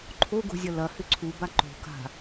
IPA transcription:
ǃʰoɡo̤zʲɐ lɐhʏ ǀʰuba ǃo̤ka̤

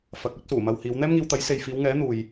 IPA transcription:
fɐ˨˥k̚ɵ˥t̚suː˨˩mɐ˧w hiː˨˧w n̪ɛː˥mŋiː˧w t̪ɐ˨˥jse˨jfiː˨˧wŋɛː˨˥ n̪uː˨j

